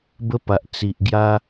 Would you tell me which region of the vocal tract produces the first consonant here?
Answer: lips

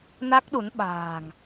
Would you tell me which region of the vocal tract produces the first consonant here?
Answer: tongue tip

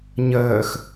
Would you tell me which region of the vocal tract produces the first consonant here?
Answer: palate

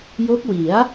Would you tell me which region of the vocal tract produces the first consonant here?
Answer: palate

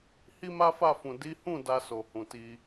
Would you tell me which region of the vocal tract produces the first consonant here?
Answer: throat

